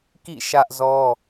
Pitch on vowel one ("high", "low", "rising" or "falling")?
falling